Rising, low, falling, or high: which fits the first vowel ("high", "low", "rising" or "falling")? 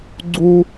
high